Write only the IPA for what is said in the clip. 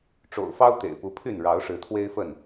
ʈ͡ʂo̰˨˩ʊ̯fɑ˦ʊ̯ t̪ḛ˨˩ɪ̯pu˨˦pʰy˥˨n ɻɑ˨˦ʊ̯ʂɻ̩˨˦t̪ʰwe˦ɪ̯fə˥˨n

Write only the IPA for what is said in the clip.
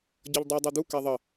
ɟʌʎdˤi dˤed̪u kɛðˤʌ

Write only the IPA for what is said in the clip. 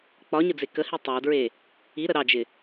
k͡pɒɲəd͡ze kəhi tˤadɹe | iɾə ɾɑd͡ʒɪ

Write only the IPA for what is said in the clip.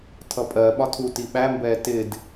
tʰʌpʼɜɓɒ tʰuti ɓæmbɛː tɪd

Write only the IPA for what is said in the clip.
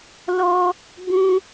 lɔ˦ | bũ˦

